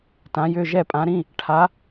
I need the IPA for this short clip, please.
t ã˩˧ j ʏ˩˧˩ ʒ ɛ˧˩ pʼ ã˩˧ ɾ ĩ˩˧˩ | ʈʰ a˩˧

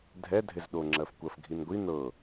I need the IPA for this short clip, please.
dʱ ɛ dʱ e z ɗ o ŋ͡ǁ ɜ f kʷ ɜ f ɡʱ i n ɡʷ i n ɤ

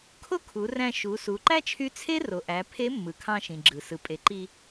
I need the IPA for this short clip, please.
kʰ o˥ kʰ u˩˧ r æ̃˧ ʃ u˩˧ s u˩˧ ǃ æ˥ t͡ʃʰ y˧˥ t͡sʰ e˥ r o˩ ʔ æ˩˧ pʰ e˧˥ mː ɯ˩ kʰ ɑ̃˧ ʃ ĩ˩ ɡ͡ǁ ɯ˩ s ɯ˩ pʼ e˩˧ ǃ i˧

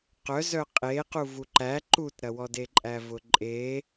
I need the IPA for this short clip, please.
q œ z œ qʼ e q u v u ǃ æ ǃ u t ɾ ɐ w ɔ d e ǃʼ æ v ʊ ǃʼ e

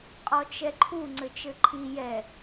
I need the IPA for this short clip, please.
qʼ ɔ t͡ʃ ɛ ǃʰ u ŋ͡ǀ ɘ t͡ʃ ɘ ǃʰ i j ɛ

